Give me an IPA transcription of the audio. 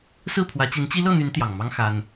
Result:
s ɹ̩˥˩ pʰ w ä˧˥ t͡ɕ i˧˥ n t͡ɕ i˥ l ɤ˥˩ n̪ y˧˥ n t̪ j ɑ˨˩ ŋ m ɑ˥ ŋ x a˥ n

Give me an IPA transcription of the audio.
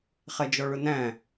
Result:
χ ɛ d͡ʒ ɔ ɭ ʊ n æ̃

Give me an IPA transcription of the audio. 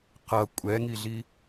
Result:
q ʌ kʷʼ ɛ ŋ i ɮ i

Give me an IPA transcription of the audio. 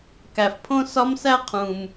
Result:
k æ˨ f pʰ õ˦ s ɒ˦ m s æ˦ qʰ ũ˨ m

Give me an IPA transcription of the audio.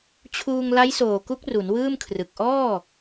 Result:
t͡ɕʰ uː˧ ŋ l a˦˥ j s oː˨˩ k u˦˥ k̚ r u˩˦ n w ɯː˥˩ m kʰ r ɯ˨˩ k̚ ʔ ɔː˥˩

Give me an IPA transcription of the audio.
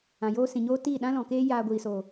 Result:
ã˨ j oː˦ s ĩ˨ ɲ oː˦ t iː˦˨ ɗ ã˦ l ɔ̃˨ k eː˦ j aː˧ ɡʷ iː˨ s oː˨

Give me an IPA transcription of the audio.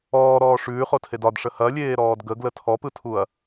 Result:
ɔː ɾ ɔː ʂ ʉː χ o tʰ e d ɒ d ʂ ə h ɐ lʲ eː ɾ ɔː d ɡ ə ɡ l ə tʰ ɔ p ɯ tʰ u ɐ̯

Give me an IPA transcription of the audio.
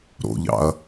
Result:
ɾ o̰ ʎ ɑ̰ ɐ̯

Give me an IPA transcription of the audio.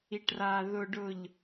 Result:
i˨ ʈ r a˨ ð ʊ˨ ɖ ʊ˨ ʎ

